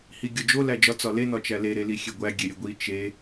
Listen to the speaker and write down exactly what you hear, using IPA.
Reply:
h i ɡʲ ɒ d͡ʒ o l æ d͡ʒ ɒ t͡s ɒ l e n ɒ t͡ʃ æ l e ɾ e l i xʲ e ɡʷ æ ɡʲ e ɾʲ e ɡʷ i t͡ʃ e

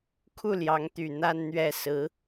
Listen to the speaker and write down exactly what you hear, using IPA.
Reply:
kʰ u˥˩ l j ɑ˧˥ ŋ t̪ y˨˩ n̪ a˥˧ n n̪ ɥ ɛ˥˩ s ɹ̩˧˥

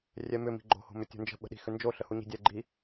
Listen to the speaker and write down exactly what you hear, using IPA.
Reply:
rʲ ɛ m ʏ m i̤ ɡ͡ǃ o̤ h o̤ m ʏ tʲ o̤ n d͡ʒ ə̤ ɓ ə̤ ɗ i̤ x ʏ n d͡ʒ o ɬ ə h u ɲ i̤ dʲ ɛ ɡ͡ǃ i

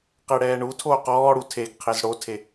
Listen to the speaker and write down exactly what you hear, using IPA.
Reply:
q e ɽ ɛː ɳ u tʰ oː q ɔː ɽ u tʰ e ɡ qʰ e z ɽ o tʰ e

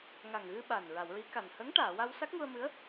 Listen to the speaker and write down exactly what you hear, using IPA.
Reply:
ŋ a˨˩ ŋ ɣ ɨ˧ ɓ a˨˩ n ɹ a˨˩˨ w ɹ i˧˥ k a˨˩ n h ə˧˥ ŋ ʈ aː˨˩˨ w a˧ w s a˦˥ k̚ ŋ u˧ ə̯ m ɨ˧˥ ə̯

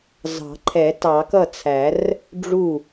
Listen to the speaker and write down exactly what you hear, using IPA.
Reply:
z ɑ̤˨˩˦ ǃʰ ɛ˨˩˦ t ɑ˨˩˦ k ʌ˥˩ t͡sʰ æ˨˩˦ r | ɖ͡ʐ u˥˩

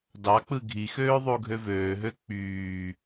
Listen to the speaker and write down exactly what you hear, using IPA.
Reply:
d ɑ k͡p ɯ ɡʱ i x øː ðˤ u ɡʱ ø v øː ɦ ø k͡p yː

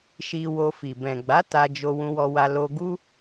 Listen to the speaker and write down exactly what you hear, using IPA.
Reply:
ʃ i˧ w o˧ f i˨ b ɛ̃˨ ɡ͡b a˨˦ t a˧ d͡ʒ o˧ w ũ˧ w ɔ˧ w a˧ l o˧ ɡ u˦

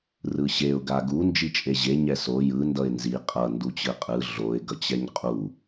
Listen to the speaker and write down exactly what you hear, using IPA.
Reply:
r ɯ ɕ e ʊ̯ ɡ a ɡ u n d͡ʒ i t͡ʃʼ e ʑ e ɲ ɛ s o j ɯ n d ʌ ɪ̯ n z i qʼ ʌ n d u t͡ɕ ɯ qʼ ɯ ɮ o ɪ̯ ɡ ʌ t͡ɕ ɛ ɲ qʼ u

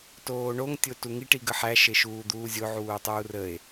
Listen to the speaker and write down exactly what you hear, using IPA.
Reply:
t oː ɳ o ŋ tʲ o t u ŋ i ʈ i ɡ ə ħ æ ʃ e ʃ uː d̪ uː zʲ o ʕ uː tˤ uː r ə e̯

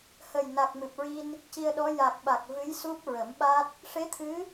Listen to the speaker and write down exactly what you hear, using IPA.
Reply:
h ə˨˩ j n a˨˩ k̚ m ɨ˨˩ p̚ ɹ i˧ n | c i˧ ə̯ ɗ ɔ˧˥ j a˨˩ k̚ ɓ a˨˩ k̚ v ɨ˧˥ j s u˦˥ p̚ ɹ ə˨˩˦ m ɓ a˦˥ t̚ | ʂ e˧˥ t̪ʰ ɨ˧˥

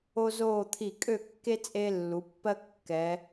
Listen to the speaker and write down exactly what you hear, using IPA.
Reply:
o˥ z oː˥˧ t̪ʰ i˧˩ kʼ ø˥˧ kː e˥ t͡sʼ e˧ lː u˩˧ pː ɜ˥ kː ɛ˩˧

